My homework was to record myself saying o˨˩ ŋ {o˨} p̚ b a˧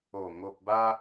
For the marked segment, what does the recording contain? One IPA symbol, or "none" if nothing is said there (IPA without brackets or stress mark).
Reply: o˨